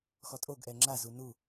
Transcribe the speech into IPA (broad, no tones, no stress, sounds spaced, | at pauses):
x ɔ tʼ o ɡ ʔ ɛ ŋ͡ǁ a z u n u